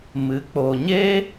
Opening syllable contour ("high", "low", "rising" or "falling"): rising